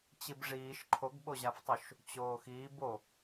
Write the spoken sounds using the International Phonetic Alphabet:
t͡ɕ i b ʐ iː ʃ ǃʰ o ɡ ɓ o ʑ a f tˤ u ʃ | t͡ɕ oː x iː b o

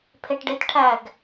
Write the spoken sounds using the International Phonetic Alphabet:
pʰ e ʈ ɖ e t ʈʰ æ ɡ

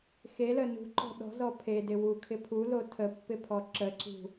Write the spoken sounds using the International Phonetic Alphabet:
x e l ə n ṳ ǃ ɔ̤ ɗ ɔ̤ z ɔ pʰ e d ɪ w u kʰ ɪ pʰ u l o tʰ ə pː ɪ pʰ ɔ ǁ ə ǀ ṳ

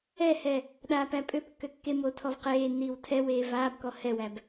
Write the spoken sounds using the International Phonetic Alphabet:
ɛ h ɛ | ɗ aː p æ pʼ ø p kː ø kː e m oː tʰ ɔ v q eː nː iː w tʰ ɛ w eː v aː b k ɔ h ɛ w æ b

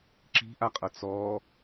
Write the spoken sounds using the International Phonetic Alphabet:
ǁ i̤ ʔ a qʼ ʌ t͡s ɔ

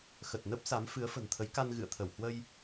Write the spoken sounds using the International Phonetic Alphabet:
x ə˨˩ t̚ n ə˦˥ p̚ s a˨˦ m f ɨ˨˦ ə̯ f ə̤˨˩ n t̪ʰ ə˨˦ j k a˧ n ɣ ɨ̰˧˨ ə̯ t̪ʰ ə˧˩ w h w ə˧ j

